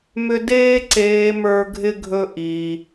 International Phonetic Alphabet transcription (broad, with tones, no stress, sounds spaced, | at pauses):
m ʏ˦ d eː˦ ǀ eː˧ m ə˞˦ ɡʱ ɪ˦ ɡʱ ɵ˦ ʔ iː˧